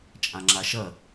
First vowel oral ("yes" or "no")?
no